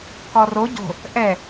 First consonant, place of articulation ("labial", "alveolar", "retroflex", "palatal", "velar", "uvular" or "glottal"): velar